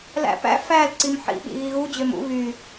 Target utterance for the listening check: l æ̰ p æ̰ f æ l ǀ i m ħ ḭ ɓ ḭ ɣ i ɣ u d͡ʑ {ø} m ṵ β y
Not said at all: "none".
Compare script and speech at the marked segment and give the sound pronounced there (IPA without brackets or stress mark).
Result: ø